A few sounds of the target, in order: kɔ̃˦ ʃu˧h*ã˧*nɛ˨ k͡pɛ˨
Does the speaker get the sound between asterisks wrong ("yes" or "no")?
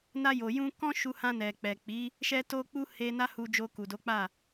no